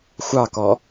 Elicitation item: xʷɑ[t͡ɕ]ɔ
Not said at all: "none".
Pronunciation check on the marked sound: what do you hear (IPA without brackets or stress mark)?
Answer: k